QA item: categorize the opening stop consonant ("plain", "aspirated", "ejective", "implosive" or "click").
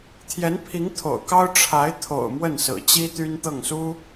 aspirated